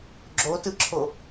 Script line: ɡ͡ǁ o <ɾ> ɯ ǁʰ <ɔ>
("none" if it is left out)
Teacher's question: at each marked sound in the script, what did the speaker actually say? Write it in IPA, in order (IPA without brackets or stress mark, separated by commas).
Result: t, o